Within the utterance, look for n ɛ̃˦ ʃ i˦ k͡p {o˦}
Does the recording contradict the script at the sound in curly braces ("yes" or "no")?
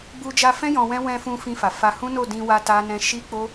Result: no